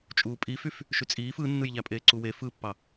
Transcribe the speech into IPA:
t͡ʃʼ uː pʼ i f y f | ʃ y t͡sʼ iː f ɯ nː ɯ j ʎ æ pʼ eː ǀ u w e f ɯ pː ɑ

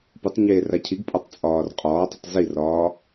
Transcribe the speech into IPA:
p u tˤ ɲ eː r a cʰ i ɡ pʼ ɒ tˤ t͡sʼ ɒː r qʼ ɒː tˤ ə tˤ z i r ɒː

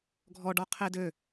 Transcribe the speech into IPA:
ɡʱ ɔ ɖ ɔ qʰ e d ø

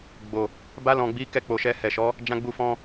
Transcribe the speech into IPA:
ɡ͡b o˨ | b a˧ l ɔ̃˨ ɡ͡b i˨˦ k ɛ˦˨ k͡p o˨ ʃ ɛ˧ h ɛ˨ ʃ ɔ˨˦ | d͡ʒ ã˧ ɡ͡b u˧ f ɔ̃˧

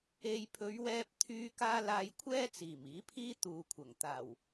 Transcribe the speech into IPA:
e˨ j pʰ ɵ˨˧ ɥ w ɛː˧ p̚ t̪ʰ yː˧ k aː˧ l aː˨ j kʷʰ ɛː˥ t͡s iː˨˩ m iː˨˥ pʰ iː˥ t̪ uː˨ kʷʰ ɐ˨˩ ŋ t̪ aː˨˩ w

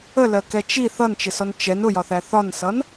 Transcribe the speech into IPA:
ə l ɜ k ɛ t͡ʃ i θ ʌ n t͡ʃ ɪ s ɔ n t͡ʃ ɛ n ʊ j ɒ θ æ θ ɒ n s ʌ n

